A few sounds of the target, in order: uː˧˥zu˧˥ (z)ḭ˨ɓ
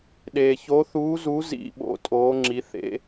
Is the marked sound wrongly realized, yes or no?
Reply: no